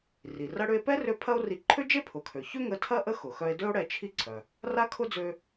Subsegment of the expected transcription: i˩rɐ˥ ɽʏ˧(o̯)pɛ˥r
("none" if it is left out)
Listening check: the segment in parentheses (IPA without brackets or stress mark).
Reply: e̯